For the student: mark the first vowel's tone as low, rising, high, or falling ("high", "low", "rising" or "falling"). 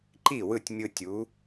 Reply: falling